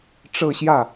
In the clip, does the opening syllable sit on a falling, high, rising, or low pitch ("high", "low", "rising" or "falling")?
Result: falling